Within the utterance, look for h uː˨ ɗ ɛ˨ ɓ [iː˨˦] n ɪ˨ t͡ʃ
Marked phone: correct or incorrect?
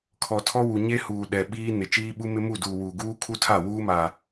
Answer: incorrect